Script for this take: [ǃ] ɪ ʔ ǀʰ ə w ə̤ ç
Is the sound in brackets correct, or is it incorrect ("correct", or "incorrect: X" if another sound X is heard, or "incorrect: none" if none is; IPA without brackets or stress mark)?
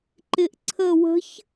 correct